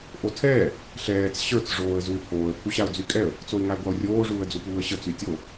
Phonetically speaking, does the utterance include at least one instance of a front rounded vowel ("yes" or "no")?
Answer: yes